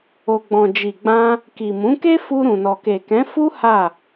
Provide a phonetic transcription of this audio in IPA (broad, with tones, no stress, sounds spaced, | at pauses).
o˨ ɡ͡b ɔ̃˨ d͡ʒ i˨ ɡ͡b ã˧ | k i˨ m ũ˨˦ k e˦ f u˧ ɾ ũ˨ n ɔ˨ k e˨ k ɛ̃˨˦ f u˦ h a˦˨